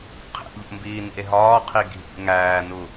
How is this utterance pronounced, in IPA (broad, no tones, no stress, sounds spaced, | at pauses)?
qʰ ḛ ʎ o̰ m b iː n ḭ e̯ ɦ ɒː qʰ i ɡʱ ḭ ŋ æː n u